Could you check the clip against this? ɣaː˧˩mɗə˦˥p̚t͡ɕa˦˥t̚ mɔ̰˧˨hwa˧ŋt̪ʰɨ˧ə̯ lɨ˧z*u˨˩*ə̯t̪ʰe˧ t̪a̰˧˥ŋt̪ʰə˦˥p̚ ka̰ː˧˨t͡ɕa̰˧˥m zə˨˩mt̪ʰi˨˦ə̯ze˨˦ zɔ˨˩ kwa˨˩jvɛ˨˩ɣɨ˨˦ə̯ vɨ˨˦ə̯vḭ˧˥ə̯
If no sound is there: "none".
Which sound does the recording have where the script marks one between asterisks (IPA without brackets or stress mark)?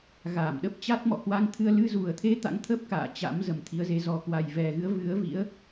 u˨˩